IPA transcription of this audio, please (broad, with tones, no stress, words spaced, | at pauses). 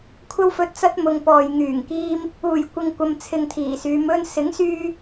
kʷʰɐ˧wfɵ˨t̚ t͡sɐ˥t̚mʊ˨ŋpɔː˨j ŋyː˨˩ŋkiː˧m | uː˨˩j kʷɪ˨ŋkʷɐ˨mt͡sʰɪ˨ŋ t̪ʰiː˨˩syː˨˧m ɵ˧nsɪ˨˥ŋsyː˧